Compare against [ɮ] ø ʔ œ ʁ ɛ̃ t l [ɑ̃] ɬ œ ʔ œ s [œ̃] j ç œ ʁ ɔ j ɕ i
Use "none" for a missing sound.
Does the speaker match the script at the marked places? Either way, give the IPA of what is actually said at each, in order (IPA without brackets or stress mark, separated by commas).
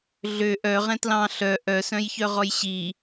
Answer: ɮ, ɑ̃, œ̃